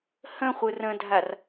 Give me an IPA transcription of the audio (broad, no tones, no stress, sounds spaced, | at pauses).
h ə̃ χʷ ɯ r ə̃ dʱ a r